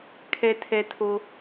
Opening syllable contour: low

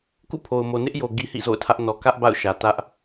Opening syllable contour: falling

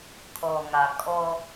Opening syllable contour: low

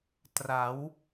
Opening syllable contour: rising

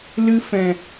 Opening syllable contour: high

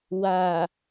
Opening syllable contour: low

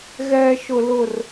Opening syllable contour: high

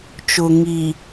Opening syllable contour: low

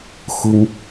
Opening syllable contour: high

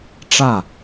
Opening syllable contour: falling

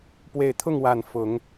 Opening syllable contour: low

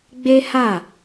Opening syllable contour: high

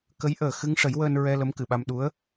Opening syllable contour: rising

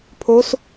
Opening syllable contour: rising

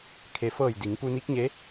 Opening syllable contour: low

